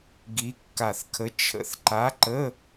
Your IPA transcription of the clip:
ɡ i˧˥ kː a˧˩ θ kʰ ə˧˥ t͡ʃʰ ə̰˧˩ θ ǃ a˧˥ ǃ ə˧˥˧

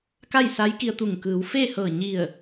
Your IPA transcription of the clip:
k a˥˨ j s a˧˥ j k i˧ ə̯ t̪ u˧˩ ŋ k ɯː˩˧ w f e˥˨ h ɤː˧˩ ɲ i˧˩ ə̯

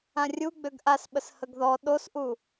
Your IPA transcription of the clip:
ã rʲ u ɡ͡b ø ɡ ʔ a s ɓ ə s h ə ɡ ð ɔ ɗ o s ʔ u

